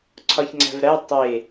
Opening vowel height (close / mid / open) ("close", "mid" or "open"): open